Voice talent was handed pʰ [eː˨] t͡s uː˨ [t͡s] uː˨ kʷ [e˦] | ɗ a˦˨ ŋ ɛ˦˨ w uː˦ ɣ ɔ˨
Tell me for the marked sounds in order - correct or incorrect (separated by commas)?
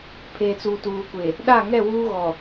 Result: correct, incorrect, incorrect